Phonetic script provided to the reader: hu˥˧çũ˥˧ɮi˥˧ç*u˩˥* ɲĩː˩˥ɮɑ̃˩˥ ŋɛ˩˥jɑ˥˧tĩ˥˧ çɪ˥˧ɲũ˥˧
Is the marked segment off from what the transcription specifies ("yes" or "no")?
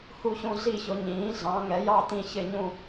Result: yes